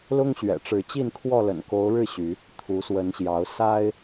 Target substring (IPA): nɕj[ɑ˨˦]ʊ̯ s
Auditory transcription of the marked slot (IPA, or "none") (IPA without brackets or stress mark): ɑ˨˦